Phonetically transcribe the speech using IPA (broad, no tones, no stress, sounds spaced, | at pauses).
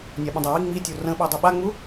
nʲ a ɓ ə̃ dˤ o w i ŋ͡m i tʲ o r ə̃ ɓ a dˤ u ɓ a ŋ͡m u